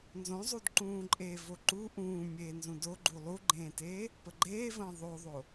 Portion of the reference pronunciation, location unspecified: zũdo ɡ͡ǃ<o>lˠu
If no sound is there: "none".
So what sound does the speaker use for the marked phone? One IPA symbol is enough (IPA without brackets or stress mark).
u